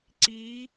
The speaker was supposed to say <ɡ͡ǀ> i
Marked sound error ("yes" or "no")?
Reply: yes